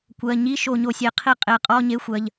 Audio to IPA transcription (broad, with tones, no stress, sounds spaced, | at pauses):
kʷ ɜ˩˧˩ ɲ i˧˥˧ ʃ o˧˩˧ ɲ o˩˧˩ sʲ e˧˩˧ qʰ i˧˥˧ qʼ e˩˧˩ qʼ ɔ˧˥˧ ɲ e˧˥˧ xʷ ɜ˩˧˩ ʎ